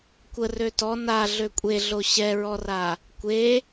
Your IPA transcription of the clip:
kʷə røtɔ na ɮøkʷʼeɮo ɕɛɹɔra | kʷe

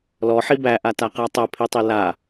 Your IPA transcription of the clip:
lɔħi bæʔataqæ tˤɜpʰitˤi la

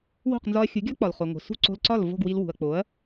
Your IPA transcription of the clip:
wo̤˥˩q nzɒ˧ɐ̯xʲu˩˥ɡʲɒ˥k͡pɒ˩l χo˩ŋo̤˩ sṳ˥˩ǀo̤˧lǀɒ˥˩l vo̤˥˩ɡwi˧lwṳ˩ɐ̯ k͡po˩˥ɐ̯

